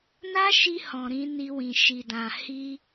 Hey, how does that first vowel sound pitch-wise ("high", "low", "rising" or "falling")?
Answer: high